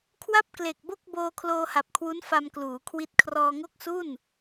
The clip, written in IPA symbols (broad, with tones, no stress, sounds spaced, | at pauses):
kʰ w a˥˩ p̚ k l e˨˩ k̚ b o˥˩ k̚ b oː˧ kʰ l oː˧ h a˨˩ p̚ kʰ w u˦˥ n f a˧ m k l uː˩˦ kʰ w i˦˥ t̚ kʰ r ɔː˧ ŋ o˥˩ k̚ s u˥˩ n